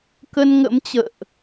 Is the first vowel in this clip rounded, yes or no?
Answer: no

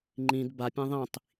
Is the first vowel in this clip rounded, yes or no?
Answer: no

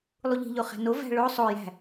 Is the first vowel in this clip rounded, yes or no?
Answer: yes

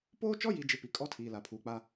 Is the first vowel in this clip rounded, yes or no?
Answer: yes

